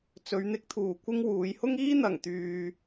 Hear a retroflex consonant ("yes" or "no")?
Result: no